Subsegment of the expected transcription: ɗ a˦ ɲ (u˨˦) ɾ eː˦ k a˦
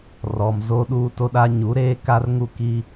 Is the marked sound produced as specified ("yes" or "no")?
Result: yes